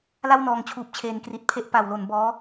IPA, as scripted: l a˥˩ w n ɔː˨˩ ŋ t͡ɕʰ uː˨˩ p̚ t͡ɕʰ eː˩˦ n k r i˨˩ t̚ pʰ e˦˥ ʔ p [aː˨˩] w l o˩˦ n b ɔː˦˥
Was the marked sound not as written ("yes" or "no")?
yes